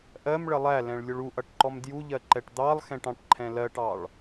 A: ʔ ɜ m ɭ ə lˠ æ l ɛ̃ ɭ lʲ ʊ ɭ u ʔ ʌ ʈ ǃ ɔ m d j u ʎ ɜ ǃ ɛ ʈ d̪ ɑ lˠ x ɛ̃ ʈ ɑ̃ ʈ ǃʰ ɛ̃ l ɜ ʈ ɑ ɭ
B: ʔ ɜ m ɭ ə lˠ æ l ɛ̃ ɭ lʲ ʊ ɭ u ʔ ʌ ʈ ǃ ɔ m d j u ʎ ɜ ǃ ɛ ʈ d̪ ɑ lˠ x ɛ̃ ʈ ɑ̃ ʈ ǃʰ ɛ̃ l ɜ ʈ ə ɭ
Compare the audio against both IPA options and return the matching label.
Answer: A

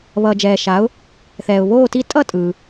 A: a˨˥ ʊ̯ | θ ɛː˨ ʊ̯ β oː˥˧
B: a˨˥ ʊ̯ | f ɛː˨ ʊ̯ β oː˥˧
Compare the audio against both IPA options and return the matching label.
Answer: A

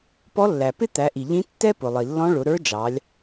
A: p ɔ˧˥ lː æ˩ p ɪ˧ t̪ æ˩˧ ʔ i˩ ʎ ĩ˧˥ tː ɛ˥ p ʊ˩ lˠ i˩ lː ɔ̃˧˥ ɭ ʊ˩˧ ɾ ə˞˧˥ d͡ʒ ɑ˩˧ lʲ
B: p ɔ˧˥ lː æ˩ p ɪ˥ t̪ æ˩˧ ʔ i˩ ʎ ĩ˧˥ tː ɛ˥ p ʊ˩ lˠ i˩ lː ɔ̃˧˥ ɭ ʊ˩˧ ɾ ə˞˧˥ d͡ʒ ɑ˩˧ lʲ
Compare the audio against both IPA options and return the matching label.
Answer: B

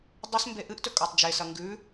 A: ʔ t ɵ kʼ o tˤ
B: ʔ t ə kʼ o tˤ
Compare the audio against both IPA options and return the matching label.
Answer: A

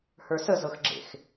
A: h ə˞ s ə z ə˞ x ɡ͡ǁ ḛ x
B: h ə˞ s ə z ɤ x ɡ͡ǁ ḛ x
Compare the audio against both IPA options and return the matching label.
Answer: B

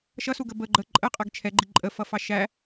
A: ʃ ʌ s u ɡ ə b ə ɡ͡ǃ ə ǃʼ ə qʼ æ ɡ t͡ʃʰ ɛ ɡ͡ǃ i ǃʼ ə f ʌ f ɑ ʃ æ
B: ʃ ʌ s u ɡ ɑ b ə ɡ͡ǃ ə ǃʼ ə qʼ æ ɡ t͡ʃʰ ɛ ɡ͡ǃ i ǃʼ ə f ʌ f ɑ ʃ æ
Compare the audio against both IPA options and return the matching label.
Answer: A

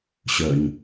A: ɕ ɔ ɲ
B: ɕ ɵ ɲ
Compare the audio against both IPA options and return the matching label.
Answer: B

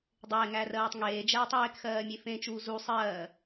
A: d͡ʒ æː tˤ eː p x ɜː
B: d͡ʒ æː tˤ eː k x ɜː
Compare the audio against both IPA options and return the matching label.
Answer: B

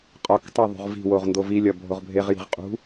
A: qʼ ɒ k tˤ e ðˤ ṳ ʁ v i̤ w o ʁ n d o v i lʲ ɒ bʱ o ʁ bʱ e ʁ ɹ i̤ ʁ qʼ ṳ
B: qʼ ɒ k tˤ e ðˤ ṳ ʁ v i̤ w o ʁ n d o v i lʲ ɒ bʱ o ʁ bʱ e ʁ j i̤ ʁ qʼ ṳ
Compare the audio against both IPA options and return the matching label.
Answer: B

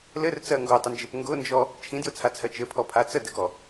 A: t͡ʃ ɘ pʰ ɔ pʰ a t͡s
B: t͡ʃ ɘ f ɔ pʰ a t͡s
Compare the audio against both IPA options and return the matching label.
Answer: A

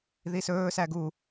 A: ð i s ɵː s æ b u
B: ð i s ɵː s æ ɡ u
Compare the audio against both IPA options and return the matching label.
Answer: B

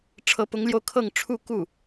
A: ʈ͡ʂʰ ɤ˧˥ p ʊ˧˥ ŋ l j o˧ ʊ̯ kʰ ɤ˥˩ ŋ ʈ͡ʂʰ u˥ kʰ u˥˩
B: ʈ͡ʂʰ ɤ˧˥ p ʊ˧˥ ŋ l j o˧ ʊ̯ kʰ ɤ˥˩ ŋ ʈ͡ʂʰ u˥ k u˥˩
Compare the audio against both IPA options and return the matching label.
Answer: B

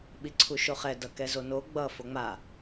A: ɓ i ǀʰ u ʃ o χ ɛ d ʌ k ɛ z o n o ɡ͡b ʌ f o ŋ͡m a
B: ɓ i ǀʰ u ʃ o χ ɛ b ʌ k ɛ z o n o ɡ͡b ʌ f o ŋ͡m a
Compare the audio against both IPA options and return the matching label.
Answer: A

